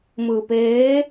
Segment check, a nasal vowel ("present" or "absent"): absent